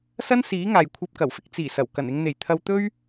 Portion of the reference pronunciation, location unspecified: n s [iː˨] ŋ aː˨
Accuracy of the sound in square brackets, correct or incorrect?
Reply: incorrect